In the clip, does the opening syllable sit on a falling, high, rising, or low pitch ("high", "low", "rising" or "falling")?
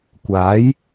rising